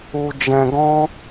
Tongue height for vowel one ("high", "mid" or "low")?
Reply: high